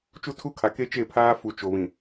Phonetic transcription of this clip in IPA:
t͡ʃ u˦ tʰ u˦ kʰ a˨ k e˦ t͡ʃ e˦˨ pʰ aː˦ f u˨ t͡ʃ o˨ β ĩ˨

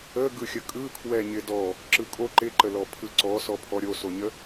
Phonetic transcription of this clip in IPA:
ə ɡ ɯ xʲ ə kʼ ɯ kʰ w ɛ ɲ ɪ d ɔ | ǁ ɯ kʼ o ǃ ɪ ǃ ə l ɔ pʰ ɯ ǀ ɔ s ɔ pʰ ɔ ɾʲ o s o ɲ ə

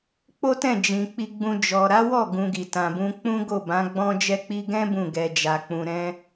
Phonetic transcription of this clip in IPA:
k͡p o˦ t ɛ̃˦˨ d͡ʒ ĩ˨ k͡p i˧ ɡ͡b ũ˧ d͡ʒ ɔ˨ ɾ a˨˦ w ɔ˦˨ ɡ ũ˧ ɡ i˨ t ã˨ b ũ˧ k͡p ũ˦ ɡ o˦˨ b ã˨˦ ɡ͡b ɔ̃˦ d͡ʒ ɛ˦ k͡p i˦ ɡ ɛ̃˦ b ũ˦˨ ɡ ɛ˨ d͡ʒ a˨ k͡p ũ˨ ɾ ɛ̃˧

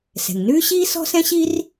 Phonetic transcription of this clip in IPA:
s ɛ̤˩ ŋ n ʉː˥ ɕ iː˥ s ɔ̤˥ s ɛ̃˥ ɕ i˥ r

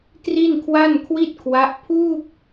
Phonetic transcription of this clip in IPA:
t r i˥˩ n kʰ w a˥˩ n kʰ w i˥˩ t̚ kʰ w a˦˥ ʔ pʰ uː˥˩ k̚

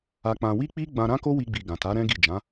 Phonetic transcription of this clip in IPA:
a˧ k͡p ã˧ w i˦ k͡p i˦ ɡ͡b ã˧ ɾ ã˦ k o˦ w i˧ ɡ͡b i˨ ɡ ã˨ t a˨˦ ɾ ɛ̃˦ ɡ i˦˨ d͡ʒ ã˨˦

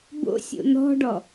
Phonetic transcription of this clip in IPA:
b o̰ sʲ o̰ n̪ ɔ̤ ɖ ɔ

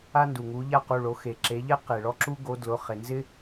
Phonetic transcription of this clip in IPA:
a˥ n d u˩ ŋ u˨˦ ʎ a˥ q u˩˧˩ ɭ o˨˦ x e˩ ǁ e˨˦ ʎ ɛ˥ q e˩ ɭ ɔ˥ ǁ u˥ ɡ o˨˦ d l ʊ˩˧˩ χ e˩ n z ɪ˥

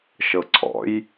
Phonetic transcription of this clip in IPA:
ʃ ɤ ǀʰ ɔ̰ j

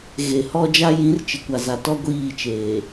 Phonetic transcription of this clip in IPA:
ɣ e˨ h ɔ˦ d͡ʒ a˦ j ĩ˨˦ r t͡ʃ ɪ˨ kʷ a˨ z a˨ t ɔ˦ ɡʷ iː˦˨ t͡ʃ eː˨

